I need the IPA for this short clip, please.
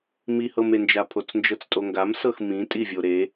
m i h ɤ m e n d͡ʒ a pʰ o t͡s n d͡ʒ ɤ t͡s tʼ o ŋ ɡ a m s ɤ x m ĩ tʼ i vʲ o ɾ e

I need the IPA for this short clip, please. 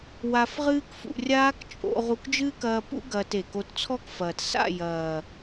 w a˧ f ʁ ɨː˦ k f ṵ˧ rʲ aː˦ k t͡ʃʼ o̰˧ ʁ u˧ k d͡ʒ ɨː˦ k ɐː˧ p ṵ˦ ɡ ɐː˧ t e˨ k o˧ t t͡sʰ ɔ˦˨ k f ɐː˨ t s a̰˦˨ j ɐː˨

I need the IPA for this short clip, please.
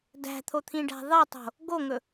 d æ̤ t̪ʰ o t̪ʰ ĩ ɖ æ̤ ðˤ e tˤ o̤ | ɡ o ŋ ɵ

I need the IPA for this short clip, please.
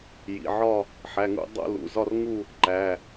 j ḭ˩˧˩ ʕ ɒ˥˧ | ħ æ˩˧˩ ŋ ṵ˥˧ dˤ o̰˥˧ l ṵ˩˧˩ z ɒ˥˧ r ŋ u˥˧ | ǃ æ˩˧˩

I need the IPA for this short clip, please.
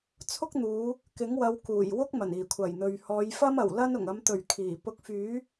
t͡sʰ ʊ˥ k̚ n̪ uː˨˧ | k ɪ˨˥ ŋ w ɐ˨˧ w k uː˨˩ j w ʊ˥ k̚ m ɐ˨˩ n iː˨˩ kʷʰ ɐ˨˩ j n̪ ɵ˨ ɥ h ɔː˨˧ j f ɐ˥ m ɐ˨˩ w l ɐ˥ n ʊ˨˩ ŋ ɐ˨˧ m t̪ ɵ˨˩ ɥ kʰ iː˨˩ p ʊ˨˥ k̚ f yː˨˥

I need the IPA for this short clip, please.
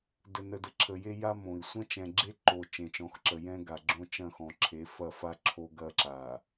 d ə˨ n ə˨ d ə˨ ǁʰ ə˨ j e˦ j a˦ m õ˨ i̯ sʷ ɐ̃˦ t͡ʃ ɛ̃˨ ɡ͡ǁ e˦ ǃ o˨ t͡ʃ ẽ˨ t͡ʃ ɔ̃˨˦ x ǁ ə˨ j ɛ̃˦ ɡ a˨ ɡ͡ǁ õ˦ t͡ʃ ɐ̃˦˨ x ɔ̃˨ ǁʰ e˨˦ f ɐ˦˨ f a˦ ǁʰ o˦ ɡ ɐ˦ ǁ a˨

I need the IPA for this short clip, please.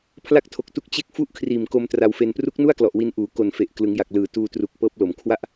pʰ l a˥˩ k̚ tʰ o˨˩ k̚ t u˦˥ k̚ t͡ɕ e˦˥ k̚ f u˥˩ ʔ kʰ r iː˨˩ m k o˧ m t r a˧ w f e˧ n p r u˦˥ k̚ n u˥˩ a̯ k l ɔ˨˩ ʔ w i˧ n ʔ uː˩˦ k o˨˩ n f e˨˩ ʔ k l ɯ˩˦ ŋ j a˨˩ k̚ l ɯː˨˩ t uː˧ t r u˨˩ k̚ p ɤː˦˥ p̚ l o˨˩ m kʰ w a˦˥ ʔ

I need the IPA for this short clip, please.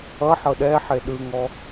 ʌ ħ ɤ ɗ ɛ ħ e ɗ ɯ ŋ ɔ

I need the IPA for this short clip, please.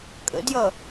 kʼ ə̰ d j ʌ

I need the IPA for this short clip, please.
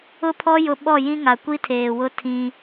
ʊ˦ pʰ ɔ˦ j ʊ˦ ɓ ɔ˦˨ j ĩ˦ ŋ a˨ kʷ i˦ tʰ eː˨ w ʊ˦ tʰ ĩ˦

